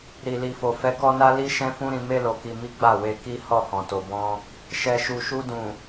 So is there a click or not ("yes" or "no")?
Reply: no